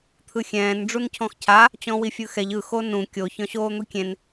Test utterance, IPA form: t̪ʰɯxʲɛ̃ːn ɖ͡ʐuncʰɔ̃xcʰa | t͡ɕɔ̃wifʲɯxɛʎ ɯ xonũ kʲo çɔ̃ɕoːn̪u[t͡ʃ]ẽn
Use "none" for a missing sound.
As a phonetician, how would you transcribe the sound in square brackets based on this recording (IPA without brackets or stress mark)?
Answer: kʲ